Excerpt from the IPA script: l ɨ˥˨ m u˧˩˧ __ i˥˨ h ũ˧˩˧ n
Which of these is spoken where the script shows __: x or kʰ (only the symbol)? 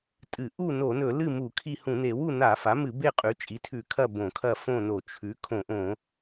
kʰ